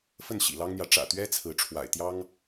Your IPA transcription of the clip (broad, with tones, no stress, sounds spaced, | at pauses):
f ə˥˨ n ɕ ḭ˨˩ l ɑ˦ ŋ n̪ j ä˨˦ ʈ͡ʂ ä̰˨˩ t̪ ɥ ɛ˦ t͡sʰ ɹ̩˨˦ ʈ͡ʂʰ w a̰˨˩ ɪ̯ t̪ j ɑ˦ ŋ